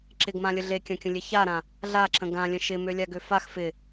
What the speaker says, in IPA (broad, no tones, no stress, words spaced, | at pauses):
ǁɪɡmãlʲə ɮekʲãkʲə̃lʲe çaɾã | ɮaǁə̃ ɡãlʲə̃ ʃɪmølʲaɡø fax fɪ